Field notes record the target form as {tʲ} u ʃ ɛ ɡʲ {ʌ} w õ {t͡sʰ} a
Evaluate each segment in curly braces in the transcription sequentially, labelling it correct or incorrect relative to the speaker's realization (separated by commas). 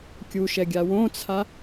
incorrect, incorrect, correct